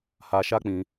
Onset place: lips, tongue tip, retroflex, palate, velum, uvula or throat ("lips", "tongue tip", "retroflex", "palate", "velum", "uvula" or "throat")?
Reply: throat